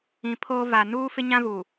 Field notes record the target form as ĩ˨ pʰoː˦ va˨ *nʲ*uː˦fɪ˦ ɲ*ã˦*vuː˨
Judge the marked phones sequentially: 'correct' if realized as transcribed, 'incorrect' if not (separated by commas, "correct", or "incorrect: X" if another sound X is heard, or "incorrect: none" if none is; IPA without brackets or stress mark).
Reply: incorrect: n, correct